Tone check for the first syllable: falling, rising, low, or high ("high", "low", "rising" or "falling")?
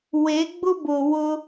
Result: rising